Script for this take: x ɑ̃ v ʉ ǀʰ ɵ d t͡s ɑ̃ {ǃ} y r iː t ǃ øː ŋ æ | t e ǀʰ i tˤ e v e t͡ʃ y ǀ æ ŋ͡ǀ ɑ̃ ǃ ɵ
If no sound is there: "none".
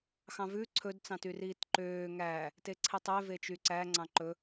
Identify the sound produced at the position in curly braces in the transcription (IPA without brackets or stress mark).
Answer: t